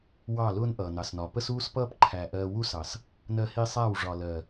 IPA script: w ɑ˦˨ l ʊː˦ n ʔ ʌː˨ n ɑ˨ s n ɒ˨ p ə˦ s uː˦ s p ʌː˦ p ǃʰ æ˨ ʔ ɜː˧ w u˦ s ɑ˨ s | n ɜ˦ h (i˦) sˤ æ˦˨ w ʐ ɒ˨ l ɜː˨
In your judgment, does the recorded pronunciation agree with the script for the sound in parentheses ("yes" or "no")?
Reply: yes